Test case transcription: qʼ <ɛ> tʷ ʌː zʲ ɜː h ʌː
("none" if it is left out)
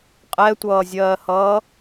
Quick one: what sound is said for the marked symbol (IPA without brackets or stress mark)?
ɛ